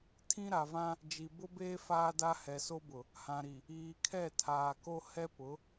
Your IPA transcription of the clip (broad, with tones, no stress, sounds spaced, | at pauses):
tʰ ĩ˦ ɾ a˨ v ã˦ | d͡ʒ i˨ b ʊ˦ b eː˦ f aː˦ d a˦ h ɛ˨ s o˦ b ʊ˨ | h ã˨ ɾ i˨ | iː˨ kʰ ɛ˦˨ tʰ aː˨ k o˦ h ɛ˦ p ʊ˨˦